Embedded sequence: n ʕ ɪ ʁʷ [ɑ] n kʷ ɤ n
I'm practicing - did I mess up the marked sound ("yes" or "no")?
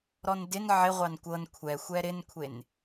no